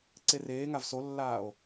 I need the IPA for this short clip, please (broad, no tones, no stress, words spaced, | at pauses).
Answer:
ǀereːŋav solːaːo̯